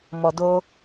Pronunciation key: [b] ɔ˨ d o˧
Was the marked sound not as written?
yes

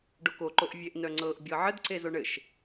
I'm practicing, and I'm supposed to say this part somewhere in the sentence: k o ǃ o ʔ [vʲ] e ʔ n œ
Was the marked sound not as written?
no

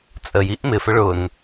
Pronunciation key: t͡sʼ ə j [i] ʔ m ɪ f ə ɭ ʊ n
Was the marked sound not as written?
no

